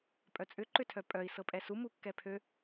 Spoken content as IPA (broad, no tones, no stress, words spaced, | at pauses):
pʼœt͡sʼʏ ǃʏtʰœpʼœi̯ sɤpʼɛsu mukːɛpʰø